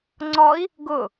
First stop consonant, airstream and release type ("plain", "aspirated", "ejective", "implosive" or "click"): click